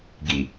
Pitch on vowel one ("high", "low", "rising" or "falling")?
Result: low